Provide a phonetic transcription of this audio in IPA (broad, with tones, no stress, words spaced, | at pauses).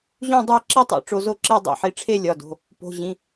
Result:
ʑũ˥˧dˤæ˥˧ ǁi˥˧tˤo̰˨˦ ʈ͡ʂo˨˦zo˥˧ǁe˥˧ dˤḭ˩˧˩ħi˨˦ʈ͡ʂʰe˥˧ lʲɒ˩˧˩do̤˩˧˩ | po̤˩˧˩ʑĩ˩˧˩